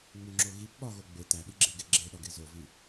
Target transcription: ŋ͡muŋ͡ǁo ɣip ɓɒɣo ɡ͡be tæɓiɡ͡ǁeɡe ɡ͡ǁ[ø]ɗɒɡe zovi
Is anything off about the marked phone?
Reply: yes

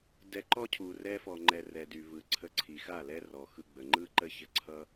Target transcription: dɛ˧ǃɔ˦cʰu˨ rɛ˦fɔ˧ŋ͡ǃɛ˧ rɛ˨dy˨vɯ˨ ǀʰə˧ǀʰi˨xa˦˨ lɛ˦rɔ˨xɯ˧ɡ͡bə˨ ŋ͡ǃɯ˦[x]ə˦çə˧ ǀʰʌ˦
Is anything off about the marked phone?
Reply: yes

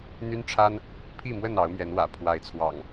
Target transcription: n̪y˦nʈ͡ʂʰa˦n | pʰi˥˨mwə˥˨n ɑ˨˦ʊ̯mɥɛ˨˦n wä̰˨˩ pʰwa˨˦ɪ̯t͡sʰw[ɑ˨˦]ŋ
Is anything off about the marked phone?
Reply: yes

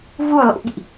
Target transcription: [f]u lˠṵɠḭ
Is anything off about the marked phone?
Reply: yes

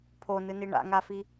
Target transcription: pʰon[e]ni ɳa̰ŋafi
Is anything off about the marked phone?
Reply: yes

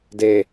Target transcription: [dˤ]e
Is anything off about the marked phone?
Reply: yes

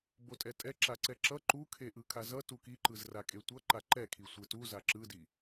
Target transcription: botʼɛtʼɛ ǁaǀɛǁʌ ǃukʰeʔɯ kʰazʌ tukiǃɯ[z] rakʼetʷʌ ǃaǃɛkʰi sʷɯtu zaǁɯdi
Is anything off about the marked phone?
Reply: no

